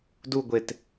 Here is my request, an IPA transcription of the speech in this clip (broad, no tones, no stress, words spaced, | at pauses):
duɡʷet